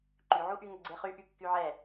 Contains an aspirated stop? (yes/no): no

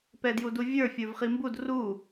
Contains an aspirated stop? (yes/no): no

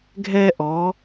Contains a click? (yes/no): no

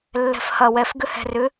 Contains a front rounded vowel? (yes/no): yes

